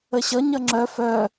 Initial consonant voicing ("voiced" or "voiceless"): voiceless